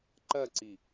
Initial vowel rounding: unrounded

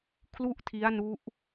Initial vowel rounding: rounded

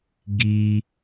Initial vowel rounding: unrounded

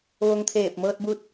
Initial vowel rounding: rounded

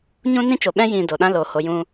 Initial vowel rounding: rounded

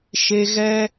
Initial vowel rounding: unrounded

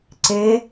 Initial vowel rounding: unrounded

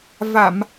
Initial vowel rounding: unrounded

